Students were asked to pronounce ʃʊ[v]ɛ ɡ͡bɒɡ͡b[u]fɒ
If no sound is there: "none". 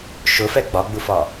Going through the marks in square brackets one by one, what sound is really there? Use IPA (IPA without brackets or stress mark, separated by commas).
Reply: f, u